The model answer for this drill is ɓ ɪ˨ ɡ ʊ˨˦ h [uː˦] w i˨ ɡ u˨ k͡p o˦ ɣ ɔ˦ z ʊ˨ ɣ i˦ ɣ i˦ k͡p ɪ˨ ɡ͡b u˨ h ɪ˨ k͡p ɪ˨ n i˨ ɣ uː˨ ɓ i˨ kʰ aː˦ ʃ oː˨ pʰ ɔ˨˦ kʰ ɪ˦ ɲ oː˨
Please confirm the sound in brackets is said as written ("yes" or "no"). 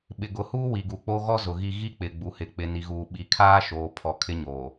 yes